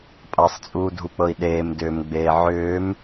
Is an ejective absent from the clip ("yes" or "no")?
no